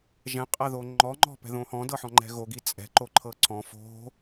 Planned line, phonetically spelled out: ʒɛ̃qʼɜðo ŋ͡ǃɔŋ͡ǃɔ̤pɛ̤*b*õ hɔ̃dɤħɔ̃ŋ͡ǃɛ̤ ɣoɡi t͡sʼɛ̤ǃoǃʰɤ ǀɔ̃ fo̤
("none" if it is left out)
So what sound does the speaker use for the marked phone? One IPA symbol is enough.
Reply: ð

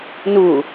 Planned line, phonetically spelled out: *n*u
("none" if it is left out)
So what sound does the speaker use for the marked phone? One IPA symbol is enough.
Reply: n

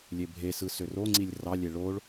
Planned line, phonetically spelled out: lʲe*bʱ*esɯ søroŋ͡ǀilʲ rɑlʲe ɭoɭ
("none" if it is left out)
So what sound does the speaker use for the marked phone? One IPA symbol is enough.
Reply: bʱ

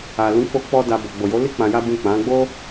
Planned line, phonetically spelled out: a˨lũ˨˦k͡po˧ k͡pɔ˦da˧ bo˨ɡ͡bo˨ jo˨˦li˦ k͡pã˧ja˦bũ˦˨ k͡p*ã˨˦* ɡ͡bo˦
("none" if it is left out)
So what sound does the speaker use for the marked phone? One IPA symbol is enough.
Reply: ã˨˦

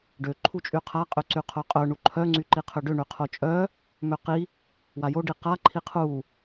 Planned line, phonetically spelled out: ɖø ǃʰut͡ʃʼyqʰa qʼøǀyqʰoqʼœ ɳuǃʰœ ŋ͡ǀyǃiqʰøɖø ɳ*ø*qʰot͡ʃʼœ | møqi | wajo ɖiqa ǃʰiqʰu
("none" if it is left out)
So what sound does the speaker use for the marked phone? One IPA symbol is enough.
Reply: y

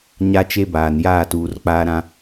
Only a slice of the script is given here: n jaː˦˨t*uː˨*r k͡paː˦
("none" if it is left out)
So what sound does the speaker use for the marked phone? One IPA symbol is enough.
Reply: uː˨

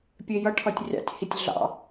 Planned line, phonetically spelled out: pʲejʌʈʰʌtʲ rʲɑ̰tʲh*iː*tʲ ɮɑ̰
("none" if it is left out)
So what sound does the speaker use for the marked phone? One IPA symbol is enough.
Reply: i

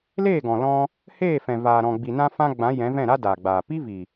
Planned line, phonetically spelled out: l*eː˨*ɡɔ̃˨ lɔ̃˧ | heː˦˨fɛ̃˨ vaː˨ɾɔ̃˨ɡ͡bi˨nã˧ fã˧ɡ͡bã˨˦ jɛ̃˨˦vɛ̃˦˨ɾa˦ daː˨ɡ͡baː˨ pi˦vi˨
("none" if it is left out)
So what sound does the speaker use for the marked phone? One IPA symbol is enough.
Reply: eː˦˨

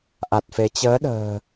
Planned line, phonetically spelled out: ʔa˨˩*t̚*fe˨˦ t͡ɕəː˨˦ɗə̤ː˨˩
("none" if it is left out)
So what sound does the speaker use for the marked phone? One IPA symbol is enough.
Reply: t̚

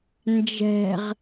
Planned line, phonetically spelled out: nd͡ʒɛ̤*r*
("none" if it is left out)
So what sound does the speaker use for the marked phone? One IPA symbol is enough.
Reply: ʁ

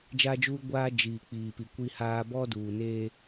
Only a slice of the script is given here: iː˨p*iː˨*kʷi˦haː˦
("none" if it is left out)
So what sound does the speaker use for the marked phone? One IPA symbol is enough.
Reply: i˨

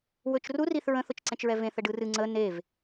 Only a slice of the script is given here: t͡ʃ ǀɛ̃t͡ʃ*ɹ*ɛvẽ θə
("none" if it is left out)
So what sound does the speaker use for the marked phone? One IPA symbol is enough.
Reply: ɹ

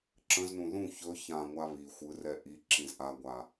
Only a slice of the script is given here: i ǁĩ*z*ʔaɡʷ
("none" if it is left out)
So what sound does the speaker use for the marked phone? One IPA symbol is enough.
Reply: z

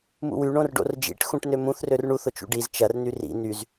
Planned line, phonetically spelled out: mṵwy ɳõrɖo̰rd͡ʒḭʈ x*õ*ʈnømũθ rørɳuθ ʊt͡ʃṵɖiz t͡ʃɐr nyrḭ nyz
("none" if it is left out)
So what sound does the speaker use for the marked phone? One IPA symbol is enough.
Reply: ũ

